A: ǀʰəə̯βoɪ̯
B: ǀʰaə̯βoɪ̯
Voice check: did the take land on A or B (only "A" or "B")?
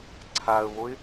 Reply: B